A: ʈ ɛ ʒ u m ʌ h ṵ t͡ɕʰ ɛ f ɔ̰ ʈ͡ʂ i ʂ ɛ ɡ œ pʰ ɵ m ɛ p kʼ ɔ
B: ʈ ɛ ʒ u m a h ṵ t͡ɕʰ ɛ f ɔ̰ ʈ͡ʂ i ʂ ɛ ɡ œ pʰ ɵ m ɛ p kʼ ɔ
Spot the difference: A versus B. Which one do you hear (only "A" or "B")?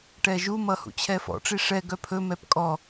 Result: A